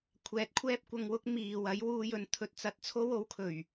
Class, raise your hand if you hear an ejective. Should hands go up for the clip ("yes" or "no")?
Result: no